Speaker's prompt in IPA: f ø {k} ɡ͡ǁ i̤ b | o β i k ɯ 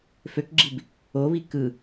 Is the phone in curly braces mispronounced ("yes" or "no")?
no